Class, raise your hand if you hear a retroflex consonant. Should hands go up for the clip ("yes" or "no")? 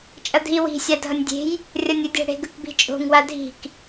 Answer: yes